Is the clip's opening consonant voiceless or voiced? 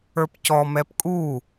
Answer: voiceless